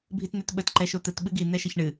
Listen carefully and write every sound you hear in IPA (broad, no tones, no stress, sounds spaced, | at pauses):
bʱ i t n̪ ɛ t ɓ ə t ǃ ɛ ʃ o t̪ ə t ɓ ɨ ɡ i n̪ ɛ ʃ ə ç ɳ ɨ